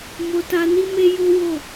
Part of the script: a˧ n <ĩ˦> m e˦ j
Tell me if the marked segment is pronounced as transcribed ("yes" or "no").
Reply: no